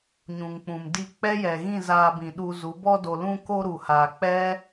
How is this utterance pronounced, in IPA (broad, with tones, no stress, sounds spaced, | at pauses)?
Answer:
ɲ ũ˨ ŋ k͡p ũ˨ m d i˦˨ k͡p ɛ˦ j ɛ˨ ɣ ĩ˦˨ z aː˧ b ĩ˨ ɗ u˧ z u˨˦ b ɔ˧ d o˨ l ũ˧ k o˧ ɾ u˨ h aː˨ k͡p ɛ˦